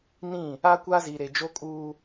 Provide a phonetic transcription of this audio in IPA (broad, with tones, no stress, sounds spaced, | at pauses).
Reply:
n ĩ˦˨ | aː˦ kʷ aː˦ z iː˨ ɾ eː˨ d͡ʒ o˦ kʼ uː˦